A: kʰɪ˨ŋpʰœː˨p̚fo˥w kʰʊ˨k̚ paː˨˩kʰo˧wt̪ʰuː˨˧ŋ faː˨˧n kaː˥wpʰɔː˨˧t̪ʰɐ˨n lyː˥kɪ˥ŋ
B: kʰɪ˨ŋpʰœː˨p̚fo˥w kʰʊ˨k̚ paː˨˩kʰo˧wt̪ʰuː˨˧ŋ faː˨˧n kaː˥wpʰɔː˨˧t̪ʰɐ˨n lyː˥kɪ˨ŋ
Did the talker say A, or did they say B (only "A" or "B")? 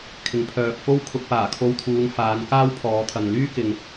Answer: B